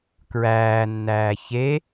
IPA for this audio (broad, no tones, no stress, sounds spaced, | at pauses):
k ɹ æː nː æː ç e